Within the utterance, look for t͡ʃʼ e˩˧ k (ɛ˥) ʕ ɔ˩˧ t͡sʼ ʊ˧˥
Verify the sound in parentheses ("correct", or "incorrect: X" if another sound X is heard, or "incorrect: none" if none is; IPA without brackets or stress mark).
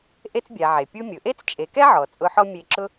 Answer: correct